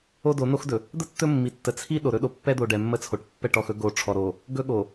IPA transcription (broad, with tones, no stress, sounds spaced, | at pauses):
o˦ d o˨˦ n o˦ x d ɵ˨ | d̪ ə˦ tː ɵ˦ mː i˨ tː ə˨ t͡sʰ i˦ ɗ o˨ ɾ ɵ˦ ɗ o˨ pː ɛ˦ d̪ o˨ ɖ ɛ˨ mː ə˦ t͡sʰ o˨ ʈ pː ɛ˦˨ ʈ ɔ˨ x ɵ˦ ɡ o˨ ʈ͡ʂʰ ɔ˨ ɾ o˨ | ɡ ɵ˦ ɠ o˨